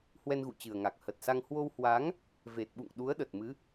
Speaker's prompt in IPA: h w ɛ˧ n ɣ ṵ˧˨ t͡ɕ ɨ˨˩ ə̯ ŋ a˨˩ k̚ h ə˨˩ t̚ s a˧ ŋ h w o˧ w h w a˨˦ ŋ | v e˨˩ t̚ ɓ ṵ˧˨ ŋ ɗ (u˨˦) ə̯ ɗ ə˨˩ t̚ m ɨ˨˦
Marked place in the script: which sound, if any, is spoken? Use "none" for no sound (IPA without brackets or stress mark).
u˨˦